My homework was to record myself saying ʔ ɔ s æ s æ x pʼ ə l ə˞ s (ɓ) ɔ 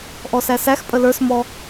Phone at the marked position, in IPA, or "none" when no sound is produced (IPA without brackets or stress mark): m